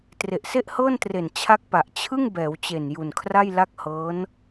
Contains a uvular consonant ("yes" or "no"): no